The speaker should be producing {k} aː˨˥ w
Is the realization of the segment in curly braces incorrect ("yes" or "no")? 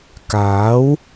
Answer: no